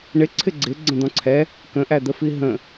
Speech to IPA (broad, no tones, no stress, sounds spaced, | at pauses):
ɳ ɪ ǀʰ ɪ ɡ͡ǀ ɪ ɡ͡ǀ ə̃ d̪ ɔ̃ ǀʰ ɛ | k ə̃ ʔ æ d̪ ə f i ɦ ə̃